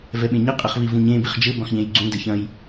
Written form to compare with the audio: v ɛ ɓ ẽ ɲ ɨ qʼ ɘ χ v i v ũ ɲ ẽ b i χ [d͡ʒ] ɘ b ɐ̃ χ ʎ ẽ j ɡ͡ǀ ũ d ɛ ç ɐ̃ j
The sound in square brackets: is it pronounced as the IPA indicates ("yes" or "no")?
yes